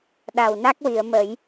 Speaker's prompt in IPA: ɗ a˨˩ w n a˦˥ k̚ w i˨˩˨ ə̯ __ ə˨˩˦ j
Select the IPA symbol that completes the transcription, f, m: m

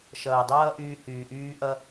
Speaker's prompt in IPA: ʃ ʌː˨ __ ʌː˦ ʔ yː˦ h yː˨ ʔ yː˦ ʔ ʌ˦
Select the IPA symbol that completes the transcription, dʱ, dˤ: dˤ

